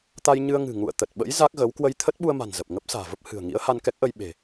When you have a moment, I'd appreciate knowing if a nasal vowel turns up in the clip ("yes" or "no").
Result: no